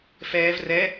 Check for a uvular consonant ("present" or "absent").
absent